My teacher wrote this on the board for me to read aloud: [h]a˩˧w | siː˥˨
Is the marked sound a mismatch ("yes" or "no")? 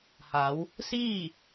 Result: no